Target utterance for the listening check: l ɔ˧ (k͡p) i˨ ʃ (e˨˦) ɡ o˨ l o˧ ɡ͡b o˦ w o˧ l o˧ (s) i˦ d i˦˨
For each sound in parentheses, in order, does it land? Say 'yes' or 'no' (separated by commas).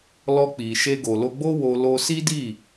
yes, no, yes